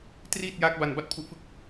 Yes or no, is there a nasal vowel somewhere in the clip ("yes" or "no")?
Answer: no